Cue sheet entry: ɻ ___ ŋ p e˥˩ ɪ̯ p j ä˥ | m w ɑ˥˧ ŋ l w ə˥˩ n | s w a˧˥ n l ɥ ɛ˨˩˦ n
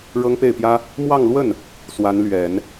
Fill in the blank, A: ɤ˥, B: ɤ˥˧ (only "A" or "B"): A